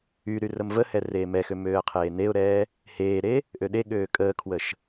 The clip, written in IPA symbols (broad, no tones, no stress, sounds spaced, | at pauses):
y ɾ y r ə m v ə h ɛ r eː m ɛ x ø m øː ə̯ qʰ eː n e ʊ̯ ɾ ɛː | h eː ɾ e | ʔ ø ɗ e ɠ øː kʼ əː kʰ w ə ʃ